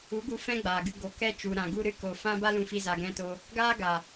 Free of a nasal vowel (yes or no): no